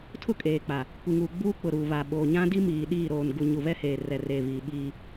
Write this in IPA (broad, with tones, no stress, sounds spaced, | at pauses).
tʰ ʊ˦ kʼ eː˨ k͡p a˨ | kʷ i˨ ŋ uː˨ ɡ͡b uː˦ k͡p ʊ˨ ɾ uː˨ β a˨ ɓ oː˨ ɲ ã˦ d i˦ m iː˨ ɗ iː˦˨ ɾ oː˨ n ɡ u˨ ɲ u˨ β ɛ˦ h eː˨ r ɛ˨ r eː˨ β iː˨ ɓ iː˦